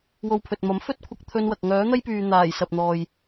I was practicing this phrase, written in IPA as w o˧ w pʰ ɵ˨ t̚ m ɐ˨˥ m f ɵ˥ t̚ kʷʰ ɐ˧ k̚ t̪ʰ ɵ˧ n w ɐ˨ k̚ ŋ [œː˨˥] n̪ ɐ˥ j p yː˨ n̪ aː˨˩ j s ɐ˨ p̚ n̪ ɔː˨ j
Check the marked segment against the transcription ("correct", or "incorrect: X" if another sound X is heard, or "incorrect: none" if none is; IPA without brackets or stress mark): correct